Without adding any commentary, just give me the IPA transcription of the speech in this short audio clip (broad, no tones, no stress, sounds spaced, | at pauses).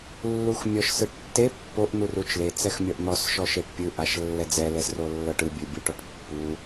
lː u x mʲ ɔ ʃ s ɯ ʈ tː e pː o ʔ n̪ u r u t͡ʃ l e t͡s ɛ x mʲ ɔ ʔ n̪ ɔ s ʃ ɔ ʃ e ʈ pʲ ɯ ʔ a ʃ lː ɛ d͡z ɛ l ɛ s r o lː ɤ ʈ ɯ bʲ ɯ bʲ u ʈ ɔ ʈ pː u